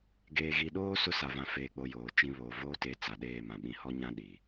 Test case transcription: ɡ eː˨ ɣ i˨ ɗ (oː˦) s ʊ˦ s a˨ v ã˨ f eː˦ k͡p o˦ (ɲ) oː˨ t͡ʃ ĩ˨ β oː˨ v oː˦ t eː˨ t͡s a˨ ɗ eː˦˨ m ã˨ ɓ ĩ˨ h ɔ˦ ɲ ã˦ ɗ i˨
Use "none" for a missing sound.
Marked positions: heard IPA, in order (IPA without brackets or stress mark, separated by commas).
oː˦, j